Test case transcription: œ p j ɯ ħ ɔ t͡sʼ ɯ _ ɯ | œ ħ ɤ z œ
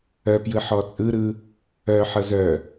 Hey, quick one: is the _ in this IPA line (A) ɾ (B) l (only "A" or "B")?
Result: A